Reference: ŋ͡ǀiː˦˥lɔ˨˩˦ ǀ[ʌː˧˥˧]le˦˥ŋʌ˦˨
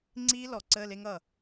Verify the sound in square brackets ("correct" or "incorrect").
incorrect